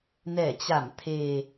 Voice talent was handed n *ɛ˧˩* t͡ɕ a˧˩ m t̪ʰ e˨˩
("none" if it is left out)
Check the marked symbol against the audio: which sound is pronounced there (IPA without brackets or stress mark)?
ɛ˧˩